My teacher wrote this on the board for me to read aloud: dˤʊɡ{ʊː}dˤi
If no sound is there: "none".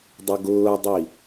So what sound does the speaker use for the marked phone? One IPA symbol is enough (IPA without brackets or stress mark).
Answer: ʊː